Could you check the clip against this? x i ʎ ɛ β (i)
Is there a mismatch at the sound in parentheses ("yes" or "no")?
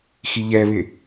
yes